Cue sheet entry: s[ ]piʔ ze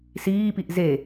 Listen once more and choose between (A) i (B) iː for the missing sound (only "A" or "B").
B